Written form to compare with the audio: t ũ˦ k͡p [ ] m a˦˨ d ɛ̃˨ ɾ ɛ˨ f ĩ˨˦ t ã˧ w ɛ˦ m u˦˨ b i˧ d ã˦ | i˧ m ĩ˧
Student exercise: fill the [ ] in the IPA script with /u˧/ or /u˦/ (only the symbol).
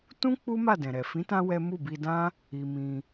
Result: u˦